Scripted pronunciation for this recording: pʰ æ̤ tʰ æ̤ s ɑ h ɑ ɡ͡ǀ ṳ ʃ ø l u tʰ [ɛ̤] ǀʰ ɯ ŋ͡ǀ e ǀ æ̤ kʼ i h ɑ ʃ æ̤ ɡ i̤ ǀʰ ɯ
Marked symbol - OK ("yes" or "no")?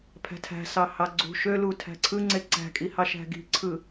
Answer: no